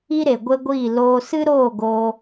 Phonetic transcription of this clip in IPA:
i˦ ɾ e˨ ɡʷ e˧ ɡʷ iː˦˨ l oː˧ s ɨ˦ ɾ oː˦˨ ɡ o˧

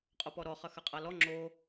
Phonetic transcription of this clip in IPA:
qʼ o p ɔ ɾ ɔ χ ɐ x ɐ qʼ a l ɔ ŋ͡ǁ o

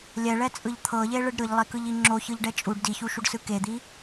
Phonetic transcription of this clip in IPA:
lʲ ɛ ɭ ɛ t͡sʼ ɯ ʎ t̪ʰ ɤ ʎ e ɭ ɯ ɖ ɾ ɯ ʎ lˠ e k ɯ ʎ i ŋ͡ǁ o ç ɯ ʎ ɖ ɛ t͡ʃʼ u ɖ d i ç u ʃ u ɖ s ɯ k e d̪ i

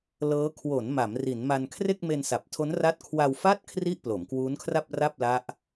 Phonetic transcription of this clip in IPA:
l ɤː˦˥ kʰ w o˩˦ n m a˩˦ m r i˩˦ n m a˧ n kʰ r e˥˩ k̚ m e˧ n s a˨˩ p̚ tʰ o˦˥ n r a˦˥ t̚ kʰ w a˧ w f a˥˩ t̚ kʰ r i˥˩ ʔ p l o˩˦ m k w uː˦˥ n kʰ r a˥˩ p̚ r a˥˩ p̚ l a˦˥ ʔ

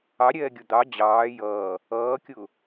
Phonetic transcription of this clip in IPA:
ɑ ɾʲ ɛː ɡʲ ʊ d̪ ɑ d͡ʑ ɑː j ʌː | ʌː kʲ ʊː

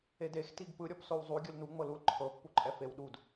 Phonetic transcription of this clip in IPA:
e d e x t i ɡ p ɯ ɾʲ ɔ p s o w zˤ u ɡʲ ɯ l n u ŋ͡m ɤ l u l ǃʰ ɤ pː u ǃʼ ɛ f e w ɗ u d

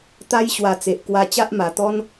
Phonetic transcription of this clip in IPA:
t̪ a˧ j ɕ w a˨˩ t͡s e˨ ʔ k w a˧ t͡ɕ a˦ ʔ m a˨˩ t̪ ɔ˦ n

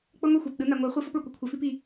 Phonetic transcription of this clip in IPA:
k͡p ɤ˦ ŋʷ i˦ xʷ a˨ p ɗ ɯ˨˦ n a˨ ŋʷ a˨˦ χʷ e˦ f ɔ˦ p ɭ u˨ kʷ ɯ˦ kʷʰ ɛ˨ f i˦ p i˨

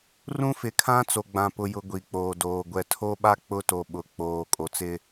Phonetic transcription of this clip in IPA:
r ũ˦ f ɪ˨ kʰ ã˦ t͡s o˨ ɡ͡b ã˨ p ʊ˨ j ʊ˨ ɡʷ i˨ k͡p oː˨ d oː˨ ɡʷ ɛ˨ tʰ o˦ ɓ a˦ k͡p ʊ˦ t o˨ ɓ ʊ˨ k͡p oː˨ kʼ o˨ t͡s ɪ˦

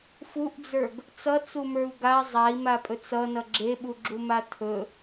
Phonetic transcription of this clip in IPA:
f u ʔ d͡z ə˞ ɡ | t͡s ʌ t͡s u m ə˞ u̯ ɡ a zˤ a i̯ m a pʼ ɵ t͡s ʌ n ʌ ɡ͡ǁ e ɓ u ɡ͡ǁ u m a tʰ ɵ

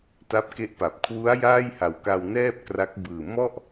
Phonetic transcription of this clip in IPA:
t a˦˥ p̚ k e˦˥ ʔ p a˨˩ p̚ kʰ w u˦˥ a̯ j aː˥˩ j h a˨˩ w k a˧ w n ɛː˥˩ p̚ k r a˦˥ k̚ b ɯː˨˩ m ɔ˥˩ ʔ

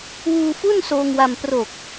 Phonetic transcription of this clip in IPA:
w uː˧ f u˥˩ n s oː˧ ŋ w a˧ m p r oː˨˩ k̚

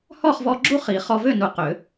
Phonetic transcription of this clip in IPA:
h ɔ˥˨ χ v ɔ˧ ɡ͡ǁ u˥˨ χ i˨˩˦ χ ɔ˧ v ø˥˨ n u˧ q ø˨˩˦

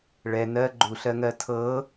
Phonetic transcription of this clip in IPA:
ɭ ɛ n ɜ ɡ͡ǃ u ɬ ɜ ŋ ɜ tʰ ɤ

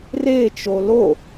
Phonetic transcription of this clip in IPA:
r e t͡ʃ o l o

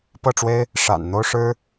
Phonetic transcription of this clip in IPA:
p ɤ˥˩ ʈ͡ʂ w e˥ ɪ̯ | ʂ a̰˨˩ n n̪ o˥ ʊ̯ ʂ ɻ̩˥

